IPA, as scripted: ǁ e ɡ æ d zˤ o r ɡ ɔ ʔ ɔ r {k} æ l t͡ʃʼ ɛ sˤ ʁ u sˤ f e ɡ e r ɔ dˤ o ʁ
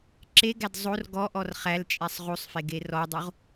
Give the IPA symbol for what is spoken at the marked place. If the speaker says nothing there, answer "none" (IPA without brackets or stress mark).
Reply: χ